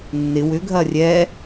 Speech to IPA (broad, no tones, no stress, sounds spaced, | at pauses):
nː ɪ w ʏ ɡʱ ɐ rʲ ɛ